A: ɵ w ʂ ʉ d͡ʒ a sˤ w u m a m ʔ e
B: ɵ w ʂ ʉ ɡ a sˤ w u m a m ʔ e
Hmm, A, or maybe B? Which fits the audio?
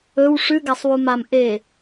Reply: B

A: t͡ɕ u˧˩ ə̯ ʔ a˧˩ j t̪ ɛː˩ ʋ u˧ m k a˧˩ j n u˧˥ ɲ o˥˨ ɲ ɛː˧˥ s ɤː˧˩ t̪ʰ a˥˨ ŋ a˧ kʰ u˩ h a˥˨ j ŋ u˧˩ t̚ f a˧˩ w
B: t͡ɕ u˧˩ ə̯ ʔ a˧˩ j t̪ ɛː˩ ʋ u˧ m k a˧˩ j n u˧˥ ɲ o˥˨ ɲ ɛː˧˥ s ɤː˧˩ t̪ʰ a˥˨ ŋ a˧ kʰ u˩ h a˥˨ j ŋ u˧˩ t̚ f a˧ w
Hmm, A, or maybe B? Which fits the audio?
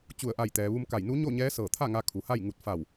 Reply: A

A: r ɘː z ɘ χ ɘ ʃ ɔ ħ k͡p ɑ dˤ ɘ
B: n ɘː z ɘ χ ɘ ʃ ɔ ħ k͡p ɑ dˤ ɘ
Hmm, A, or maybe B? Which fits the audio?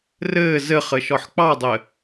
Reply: A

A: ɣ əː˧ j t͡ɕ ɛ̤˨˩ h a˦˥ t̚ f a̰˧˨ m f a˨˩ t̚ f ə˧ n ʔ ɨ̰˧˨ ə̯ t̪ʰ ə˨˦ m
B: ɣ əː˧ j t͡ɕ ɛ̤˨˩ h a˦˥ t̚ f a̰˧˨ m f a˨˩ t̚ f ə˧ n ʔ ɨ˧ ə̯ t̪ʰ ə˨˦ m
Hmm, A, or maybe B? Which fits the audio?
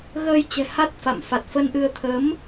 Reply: B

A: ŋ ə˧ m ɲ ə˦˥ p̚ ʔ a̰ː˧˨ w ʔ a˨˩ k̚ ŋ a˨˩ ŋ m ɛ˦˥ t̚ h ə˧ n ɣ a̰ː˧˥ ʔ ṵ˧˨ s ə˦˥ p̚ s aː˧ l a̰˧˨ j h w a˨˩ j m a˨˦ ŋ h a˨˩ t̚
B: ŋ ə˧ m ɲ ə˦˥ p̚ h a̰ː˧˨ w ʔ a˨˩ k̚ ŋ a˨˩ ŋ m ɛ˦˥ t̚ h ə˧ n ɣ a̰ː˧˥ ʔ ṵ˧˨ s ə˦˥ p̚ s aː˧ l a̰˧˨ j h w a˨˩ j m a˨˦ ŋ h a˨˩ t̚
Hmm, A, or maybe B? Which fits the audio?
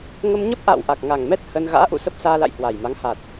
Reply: A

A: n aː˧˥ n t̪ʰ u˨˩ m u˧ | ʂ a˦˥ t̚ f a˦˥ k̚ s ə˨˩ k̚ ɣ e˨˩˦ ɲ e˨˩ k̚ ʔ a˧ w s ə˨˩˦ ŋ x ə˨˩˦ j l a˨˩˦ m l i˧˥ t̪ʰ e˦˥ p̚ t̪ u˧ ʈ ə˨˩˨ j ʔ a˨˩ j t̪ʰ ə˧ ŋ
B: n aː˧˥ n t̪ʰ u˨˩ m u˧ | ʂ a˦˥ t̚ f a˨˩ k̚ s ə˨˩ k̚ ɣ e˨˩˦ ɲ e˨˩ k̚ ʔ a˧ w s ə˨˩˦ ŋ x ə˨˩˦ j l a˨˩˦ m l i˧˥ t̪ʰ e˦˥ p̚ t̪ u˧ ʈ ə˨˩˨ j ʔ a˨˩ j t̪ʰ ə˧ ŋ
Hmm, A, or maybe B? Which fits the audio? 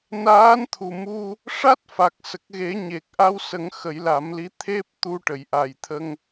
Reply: B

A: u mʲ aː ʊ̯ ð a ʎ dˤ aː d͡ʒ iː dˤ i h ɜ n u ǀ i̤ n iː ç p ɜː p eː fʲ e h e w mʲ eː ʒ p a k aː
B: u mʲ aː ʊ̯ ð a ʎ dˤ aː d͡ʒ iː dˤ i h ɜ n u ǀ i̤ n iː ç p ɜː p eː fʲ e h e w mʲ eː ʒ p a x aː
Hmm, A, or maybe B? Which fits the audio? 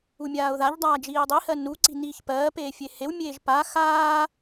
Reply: B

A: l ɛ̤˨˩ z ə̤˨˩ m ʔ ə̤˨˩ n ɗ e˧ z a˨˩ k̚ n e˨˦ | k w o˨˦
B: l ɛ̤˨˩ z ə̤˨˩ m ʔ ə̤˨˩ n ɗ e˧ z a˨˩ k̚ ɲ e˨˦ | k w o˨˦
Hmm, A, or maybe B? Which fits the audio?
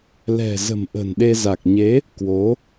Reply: B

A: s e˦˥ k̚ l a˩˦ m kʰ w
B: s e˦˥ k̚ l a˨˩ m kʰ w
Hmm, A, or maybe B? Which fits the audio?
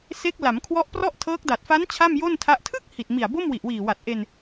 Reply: A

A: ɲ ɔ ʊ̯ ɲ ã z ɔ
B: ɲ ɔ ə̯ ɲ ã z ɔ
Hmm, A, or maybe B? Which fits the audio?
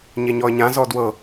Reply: B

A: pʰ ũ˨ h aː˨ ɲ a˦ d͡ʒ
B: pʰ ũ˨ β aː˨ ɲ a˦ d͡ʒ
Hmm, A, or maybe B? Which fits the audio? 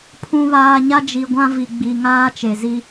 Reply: B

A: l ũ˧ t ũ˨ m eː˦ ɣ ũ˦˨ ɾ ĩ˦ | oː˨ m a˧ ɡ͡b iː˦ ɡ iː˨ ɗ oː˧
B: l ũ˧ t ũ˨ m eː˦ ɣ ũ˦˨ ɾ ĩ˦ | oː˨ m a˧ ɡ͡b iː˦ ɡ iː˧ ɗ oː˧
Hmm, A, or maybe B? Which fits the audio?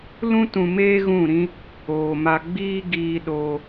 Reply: B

